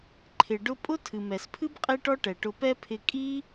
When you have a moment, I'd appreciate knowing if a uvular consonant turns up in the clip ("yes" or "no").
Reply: yes